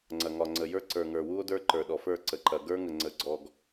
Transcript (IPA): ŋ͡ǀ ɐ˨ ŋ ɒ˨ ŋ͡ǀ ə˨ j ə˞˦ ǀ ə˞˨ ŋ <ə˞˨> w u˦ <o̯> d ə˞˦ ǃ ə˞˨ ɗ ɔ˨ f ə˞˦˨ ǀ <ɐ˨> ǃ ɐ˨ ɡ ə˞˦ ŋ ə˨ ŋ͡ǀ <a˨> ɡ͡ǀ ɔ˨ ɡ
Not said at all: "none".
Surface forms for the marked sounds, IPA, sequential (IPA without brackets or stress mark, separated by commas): ə˞˨, o̯, ə˨, ə˨